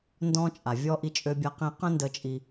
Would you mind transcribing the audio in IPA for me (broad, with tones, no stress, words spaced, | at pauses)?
ndɔ̃˧t͡ʃʼa˩ vʲɔ˧ ʔi˧t͡ʃʼø˧bʲa˧qĩ˧ qə̃˥ndə˧t͡ʃʼi˧